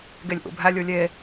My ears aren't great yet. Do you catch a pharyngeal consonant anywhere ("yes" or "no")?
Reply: no